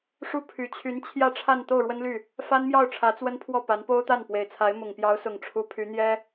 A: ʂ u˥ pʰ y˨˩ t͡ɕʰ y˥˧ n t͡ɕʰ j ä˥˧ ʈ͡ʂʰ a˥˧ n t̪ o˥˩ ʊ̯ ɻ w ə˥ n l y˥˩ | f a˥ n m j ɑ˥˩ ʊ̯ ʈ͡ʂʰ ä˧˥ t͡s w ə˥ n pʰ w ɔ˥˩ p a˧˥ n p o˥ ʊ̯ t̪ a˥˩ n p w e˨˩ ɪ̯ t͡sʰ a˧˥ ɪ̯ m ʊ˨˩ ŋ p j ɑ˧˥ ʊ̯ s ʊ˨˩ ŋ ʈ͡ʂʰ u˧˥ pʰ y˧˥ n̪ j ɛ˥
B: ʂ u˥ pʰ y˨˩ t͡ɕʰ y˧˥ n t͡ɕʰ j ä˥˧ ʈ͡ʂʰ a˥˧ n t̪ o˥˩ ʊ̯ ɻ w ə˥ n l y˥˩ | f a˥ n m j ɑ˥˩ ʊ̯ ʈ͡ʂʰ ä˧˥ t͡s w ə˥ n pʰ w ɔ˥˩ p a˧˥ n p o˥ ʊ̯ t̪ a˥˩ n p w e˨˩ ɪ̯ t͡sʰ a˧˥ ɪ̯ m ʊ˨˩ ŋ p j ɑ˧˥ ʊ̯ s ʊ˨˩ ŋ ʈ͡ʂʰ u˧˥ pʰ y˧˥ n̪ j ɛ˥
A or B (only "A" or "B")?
B